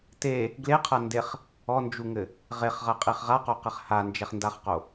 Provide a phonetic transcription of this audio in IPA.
t e | ɡ l e qʰ ɐ n d e χ | ɔ n d͡ʒ u ŋ ɘ | ʁ e χ ʁ ɐ qʼ i χ ʁ a q o q ɛ χ h a n d͡ʒ ɛ χ n d a χ q o

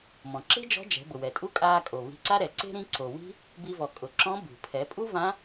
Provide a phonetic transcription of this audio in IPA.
m ɔ̃˩ ǁ e̤˥ d͡ʒ ɔ̤˧˥ d͡ʒ ɛ̤˩˧ b ʊ˩ w ɛ˩ tʼ u˥ kʼ aː˧ kʼ o˩ β i̤˧ ǀ a˥ ɾ ɛ˩ ǀ e̤˥ ɾ ĩ˧˥ ǀ o˩ w i̤˥ | b i˧ v ɔ˩ kʼ ʊ˩˧ ǁ ɔ̃˧˥ b ṳ˩ pʰ ɛ˩˧ pʼ u˥ v ã˧˥

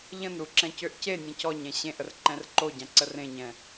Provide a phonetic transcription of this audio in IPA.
ʎ ə̃ n ɾ u ǁ ɛ̃ c ø ʔ c e nʲ ɛ̃ c ɔ ɲ ɛ̃ ɕ ẽ ʔ ə r ǃ ɛ̃ r ǃ o ɟ ã ǀ ə r ẽ ɲ ɛ̃

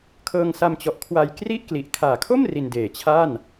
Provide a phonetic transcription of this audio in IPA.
kʰ ɤː˧ ŋ s a˧ m t͡ɕ ɔ˨˩ ʔ kʰ w a˧ j k r i˥˩ ʔ k l i˨˩ ʔ kʰ aː˨˩ kʰ o˥˩ m r i˧ n d eː˨˩ t͡ɕʰ a˥˩ n

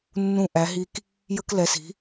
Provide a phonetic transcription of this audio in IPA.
nː ũ˦ ʔ æ˩˥ ɦ i˦ k | j ə˦ k l ɛ˩˥ s i̤˩˥

